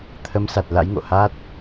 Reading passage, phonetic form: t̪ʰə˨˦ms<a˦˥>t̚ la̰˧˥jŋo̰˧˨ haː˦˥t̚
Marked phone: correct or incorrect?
incorrect